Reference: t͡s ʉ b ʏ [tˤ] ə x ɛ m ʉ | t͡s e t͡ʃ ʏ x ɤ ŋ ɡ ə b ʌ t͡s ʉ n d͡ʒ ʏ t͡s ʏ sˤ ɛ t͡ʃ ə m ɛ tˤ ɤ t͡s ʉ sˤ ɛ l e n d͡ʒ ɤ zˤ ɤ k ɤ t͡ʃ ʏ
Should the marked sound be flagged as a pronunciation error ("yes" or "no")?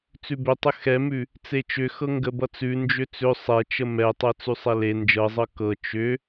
no